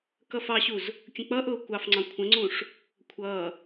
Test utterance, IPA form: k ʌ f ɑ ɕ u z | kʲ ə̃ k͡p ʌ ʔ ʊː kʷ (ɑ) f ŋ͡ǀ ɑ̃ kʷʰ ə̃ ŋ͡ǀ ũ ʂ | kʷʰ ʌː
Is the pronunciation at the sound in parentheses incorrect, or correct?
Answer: correct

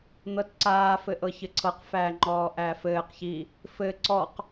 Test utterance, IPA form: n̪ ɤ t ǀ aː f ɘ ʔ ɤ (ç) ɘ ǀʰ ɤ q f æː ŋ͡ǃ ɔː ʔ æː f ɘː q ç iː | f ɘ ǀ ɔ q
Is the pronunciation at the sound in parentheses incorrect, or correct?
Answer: correct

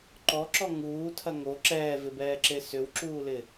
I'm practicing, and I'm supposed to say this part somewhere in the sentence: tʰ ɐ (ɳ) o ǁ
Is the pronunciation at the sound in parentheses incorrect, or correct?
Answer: incorrect: ŋ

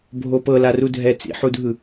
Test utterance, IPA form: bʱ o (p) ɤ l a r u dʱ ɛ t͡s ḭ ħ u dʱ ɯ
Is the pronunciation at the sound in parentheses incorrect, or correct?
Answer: correct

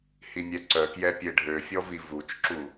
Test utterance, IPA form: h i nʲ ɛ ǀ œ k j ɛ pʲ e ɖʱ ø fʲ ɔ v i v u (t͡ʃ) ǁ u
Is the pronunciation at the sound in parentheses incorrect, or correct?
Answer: correct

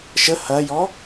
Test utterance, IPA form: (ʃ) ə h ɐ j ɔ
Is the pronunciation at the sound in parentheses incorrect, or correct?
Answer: correct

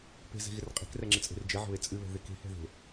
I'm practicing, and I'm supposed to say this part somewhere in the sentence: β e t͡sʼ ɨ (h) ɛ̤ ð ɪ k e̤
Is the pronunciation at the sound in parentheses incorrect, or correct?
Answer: incorrect: β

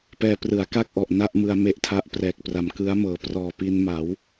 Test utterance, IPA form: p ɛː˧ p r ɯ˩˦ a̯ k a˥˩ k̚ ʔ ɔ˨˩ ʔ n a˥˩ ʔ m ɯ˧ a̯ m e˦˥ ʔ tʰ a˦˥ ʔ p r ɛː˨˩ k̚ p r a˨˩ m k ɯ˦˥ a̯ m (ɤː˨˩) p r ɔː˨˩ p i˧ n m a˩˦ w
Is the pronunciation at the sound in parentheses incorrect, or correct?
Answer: correct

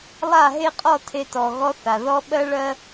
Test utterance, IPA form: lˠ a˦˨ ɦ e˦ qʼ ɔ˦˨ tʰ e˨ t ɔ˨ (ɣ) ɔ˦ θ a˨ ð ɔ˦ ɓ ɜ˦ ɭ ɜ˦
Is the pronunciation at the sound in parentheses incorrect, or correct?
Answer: correct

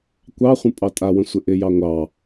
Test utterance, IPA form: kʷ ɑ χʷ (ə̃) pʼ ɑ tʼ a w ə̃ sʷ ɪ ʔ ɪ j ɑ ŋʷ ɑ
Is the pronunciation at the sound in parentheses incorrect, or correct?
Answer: correct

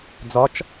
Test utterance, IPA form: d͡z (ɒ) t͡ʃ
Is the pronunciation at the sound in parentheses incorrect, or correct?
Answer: correct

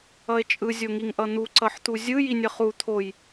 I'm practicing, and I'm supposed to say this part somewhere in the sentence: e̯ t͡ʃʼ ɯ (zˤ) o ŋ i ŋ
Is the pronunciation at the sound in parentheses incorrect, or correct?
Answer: incorrect: zʲ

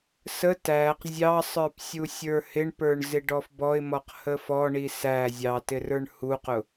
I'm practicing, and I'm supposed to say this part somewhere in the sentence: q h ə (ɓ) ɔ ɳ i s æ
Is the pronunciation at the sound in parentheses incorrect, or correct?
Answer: incorrect: f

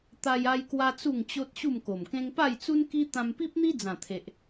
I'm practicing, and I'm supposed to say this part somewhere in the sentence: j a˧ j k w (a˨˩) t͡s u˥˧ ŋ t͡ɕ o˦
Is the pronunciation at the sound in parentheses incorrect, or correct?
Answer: incorrect: a˦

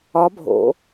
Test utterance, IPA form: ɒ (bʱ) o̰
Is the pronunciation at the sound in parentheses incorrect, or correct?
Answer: correct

